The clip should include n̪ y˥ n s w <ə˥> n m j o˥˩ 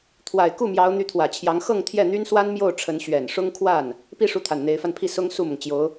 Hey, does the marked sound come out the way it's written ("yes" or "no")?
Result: no